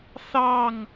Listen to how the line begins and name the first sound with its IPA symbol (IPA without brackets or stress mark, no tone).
θ